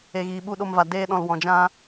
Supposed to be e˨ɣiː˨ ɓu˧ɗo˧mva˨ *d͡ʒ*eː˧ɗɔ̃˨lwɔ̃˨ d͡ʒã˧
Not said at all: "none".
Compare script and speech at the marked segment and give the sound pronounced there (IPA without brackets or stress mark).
d